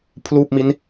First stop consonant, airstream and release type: aspirated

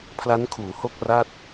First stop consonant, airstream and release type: aspirated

